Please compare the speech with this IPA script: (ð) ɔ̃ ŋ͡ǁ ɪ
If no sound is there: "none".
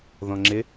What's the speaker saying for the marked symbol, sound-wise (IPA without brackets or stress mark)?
ð